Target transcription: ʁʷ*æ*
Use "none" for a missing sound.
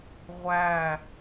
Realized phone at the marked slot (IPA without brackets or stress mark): æ